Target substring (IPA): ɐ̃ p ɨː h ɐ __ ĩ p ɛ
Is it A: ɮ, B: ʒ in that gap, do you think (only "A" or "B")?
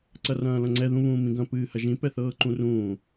B